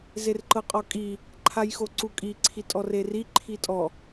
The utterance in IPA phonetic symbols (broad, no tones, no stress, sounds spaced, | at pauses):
z e r ǃ ɤ qʼ ɔ kʼ i | ǃʰ a j x o ǀ u kʼ i ǀʰ i tʼ ɔ r e r i ǃʰ i tʼ ɔ